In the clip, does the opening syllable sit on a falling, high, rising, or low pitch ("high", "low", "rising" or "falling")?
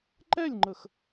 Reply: falling